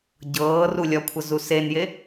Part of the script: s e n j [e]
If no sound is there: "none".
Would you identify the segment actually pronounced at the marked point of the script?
e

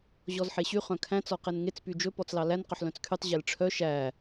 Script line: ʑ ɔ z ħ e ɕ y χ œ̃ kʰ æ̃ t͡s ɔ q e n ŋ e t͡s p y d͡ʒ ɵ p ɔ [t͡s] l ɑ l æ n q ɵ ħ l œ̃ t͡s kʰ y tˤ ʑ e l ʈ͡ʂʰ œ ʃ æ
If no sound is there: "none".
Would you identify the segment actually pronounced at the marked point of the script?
t͡s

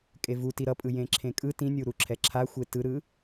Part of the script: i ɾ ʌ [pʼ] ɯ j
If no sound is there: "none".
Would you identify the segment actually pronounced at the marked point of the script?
pʼ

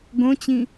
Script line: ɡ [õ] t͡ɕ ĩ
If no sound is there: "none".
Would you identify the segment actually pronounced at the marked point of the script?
õ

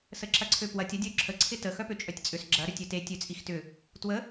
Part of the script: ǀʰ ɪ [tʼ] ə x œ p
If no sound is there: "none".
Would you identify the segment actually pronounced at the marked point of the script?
t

